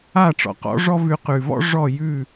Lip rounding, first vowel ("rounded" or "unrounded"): unrounded